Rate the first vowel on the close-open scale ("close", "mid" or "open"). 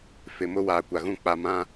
close